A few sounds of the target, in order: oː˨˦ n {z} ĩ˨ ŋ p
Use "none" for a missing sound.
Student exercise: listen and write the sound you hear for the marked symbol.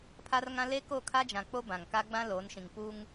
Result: ʃ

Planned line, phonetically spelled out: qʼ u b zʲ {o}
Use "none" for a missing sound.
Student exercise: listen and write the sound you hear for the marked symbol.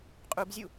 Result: u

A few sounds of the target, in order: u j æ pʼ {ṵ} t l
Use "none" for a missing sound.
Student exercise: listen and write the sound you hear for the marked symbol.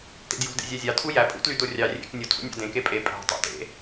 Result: ṵ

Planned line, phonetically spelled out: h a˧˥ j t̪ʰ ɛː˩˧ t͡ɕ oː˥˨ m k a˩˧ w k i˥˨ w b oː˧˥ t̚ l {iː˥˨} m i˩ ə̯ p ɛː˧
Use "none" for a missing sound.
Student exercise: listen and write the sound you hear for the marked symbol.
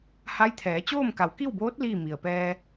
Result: iː˥˨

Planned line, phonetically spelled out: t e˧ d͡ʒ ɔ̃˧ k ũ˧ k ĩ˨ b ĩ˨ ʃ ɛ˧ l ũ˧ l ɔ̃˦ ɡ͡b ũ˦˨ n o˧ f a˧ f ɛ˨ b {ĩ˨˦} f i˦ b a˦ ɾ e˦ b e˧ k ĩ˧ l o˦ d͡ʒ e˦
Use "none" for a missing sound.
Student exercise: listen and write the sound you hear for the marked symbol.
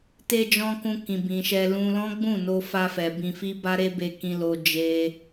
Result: ĩ˧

